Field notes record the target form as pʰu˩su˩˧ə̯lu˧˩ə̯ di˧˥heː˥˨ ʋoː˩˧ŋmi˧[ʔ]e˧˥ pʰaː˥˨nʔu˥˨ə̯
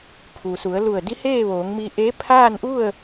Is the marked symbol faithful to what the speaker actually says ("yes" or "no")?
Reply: yes